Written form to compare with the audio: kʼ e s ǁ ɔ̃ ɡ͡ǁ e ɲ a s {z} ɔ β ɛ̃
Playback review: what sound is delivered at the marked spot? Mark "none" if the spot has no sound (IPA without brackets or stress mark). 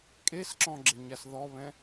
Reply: ð